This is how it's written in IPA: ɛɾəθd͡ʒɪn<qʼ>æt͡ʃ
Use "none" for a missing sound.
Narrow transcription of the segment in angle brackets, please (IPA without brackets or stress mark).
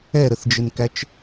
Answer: k